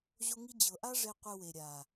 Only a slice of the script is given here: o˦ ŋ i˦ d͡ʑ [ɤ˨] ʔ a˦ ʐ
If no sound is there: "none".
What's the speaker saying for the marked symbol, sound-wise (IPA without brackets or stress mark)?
ɤ˨